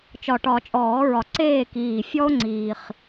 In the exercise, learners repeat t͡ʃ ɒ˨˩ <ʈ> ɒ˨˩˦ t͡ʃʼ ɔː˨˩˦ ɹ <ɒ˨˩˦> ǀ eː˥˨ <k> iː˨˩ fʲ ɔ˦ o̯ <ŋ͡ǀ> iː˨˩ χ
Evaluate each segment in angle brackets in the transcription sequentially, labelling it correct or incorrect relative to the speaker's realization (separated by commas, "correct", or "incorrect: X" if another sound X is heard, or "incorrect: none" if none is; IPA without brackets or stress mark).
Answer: correct, incorrect: ɒ˨˩, correct, correct